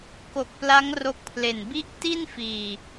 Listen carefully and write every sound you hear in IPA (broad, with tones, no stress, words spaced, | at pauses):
ko˨˩k̚pla˦˥ŋ ro˦˥k̚pʰle˨˩n bi˥˩ʔ ti˥˩nfiː˨˩